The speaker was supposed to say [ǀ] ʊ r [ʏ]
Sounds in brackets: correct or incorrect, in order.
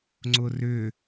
incorrect, correct

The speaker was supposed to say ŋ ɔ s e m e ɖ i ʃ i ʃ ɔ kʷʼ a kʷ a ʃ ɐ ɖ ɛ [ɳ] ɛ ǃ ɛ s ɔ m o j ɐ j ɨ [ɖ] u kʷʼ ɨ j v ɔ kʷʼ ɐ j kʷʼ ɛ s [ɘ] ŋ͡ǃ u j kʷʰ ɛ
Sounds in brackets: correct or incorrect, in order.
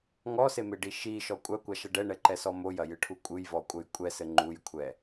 correct, incorrect, correct

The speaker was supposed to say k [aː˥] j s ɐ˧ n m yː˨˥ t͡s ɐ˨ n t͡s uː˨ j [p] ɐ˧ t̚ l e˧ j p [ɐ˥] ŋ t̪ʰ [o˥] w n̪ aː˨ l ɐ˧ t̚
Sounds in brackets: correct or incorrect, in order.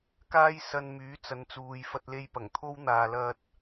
correct, incorrect, incorrect, correct

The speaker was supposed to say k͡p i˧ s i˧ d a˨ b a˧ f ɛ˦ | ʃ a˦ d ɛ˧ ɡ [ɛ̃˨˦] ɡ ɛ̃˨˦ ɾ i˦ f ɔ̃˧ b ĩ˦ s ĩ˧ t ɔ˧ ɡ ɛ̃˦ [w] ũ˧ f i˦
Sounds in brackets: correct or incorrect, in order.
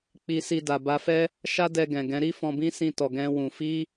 incorrect, correct

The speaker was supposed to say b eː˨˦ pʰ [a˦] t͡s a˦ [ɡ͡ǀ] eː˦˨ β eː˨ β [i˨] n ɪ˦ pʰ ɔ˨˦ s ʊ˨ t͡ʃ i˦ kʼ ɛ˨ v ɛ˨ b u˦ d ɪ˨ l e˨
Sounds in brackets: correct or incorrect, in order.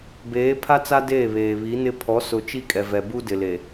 correct, incorrect, incorrect

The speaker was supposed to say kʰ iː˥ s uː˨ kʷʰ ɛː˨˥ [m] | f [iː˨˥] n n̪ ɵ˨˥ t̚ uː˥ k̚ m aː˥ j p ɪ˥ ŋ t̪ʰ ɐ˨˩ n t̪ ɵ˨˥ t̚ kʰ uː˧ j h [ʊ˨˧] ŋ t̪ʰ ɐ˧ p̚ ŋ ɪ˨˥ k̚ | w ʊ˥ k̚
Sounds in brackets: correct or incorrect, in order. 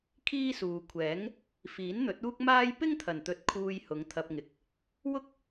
incorrect, correct, correct

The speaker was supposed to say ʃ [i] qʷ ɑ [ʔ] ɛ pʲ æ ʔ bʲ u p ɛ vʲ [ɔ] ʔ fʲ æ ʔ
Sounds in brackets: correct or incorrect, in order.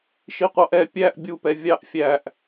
correct, correct, incorrect

